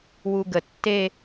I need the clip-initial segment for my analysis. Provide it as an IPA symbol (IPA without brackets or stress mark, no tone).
w